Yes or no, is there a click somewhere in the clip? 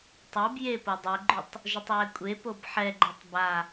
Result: yes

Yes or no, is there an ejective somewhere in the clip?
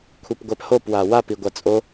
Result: yes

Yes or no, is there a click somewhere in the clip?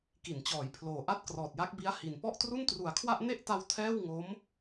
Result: no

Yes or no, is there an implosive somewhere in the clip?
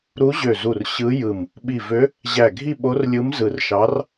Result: yes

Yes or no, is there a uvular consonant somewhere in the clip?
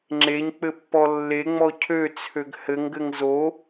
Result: no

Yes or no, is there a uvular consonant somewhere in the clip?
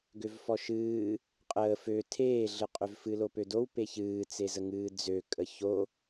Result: yes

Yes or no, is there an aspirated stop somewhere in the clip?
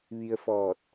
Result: no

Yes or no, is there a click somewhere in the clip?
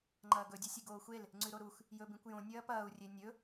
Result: yes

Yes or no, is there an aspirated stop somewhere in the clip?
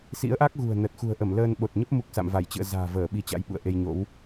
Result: no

